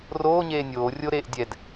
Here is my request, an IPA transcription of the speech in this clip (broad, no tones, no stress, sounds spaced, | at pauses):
r oː ɲ eː nʲ oː rʲ o ɾ eː ʔ dʲ ɛ d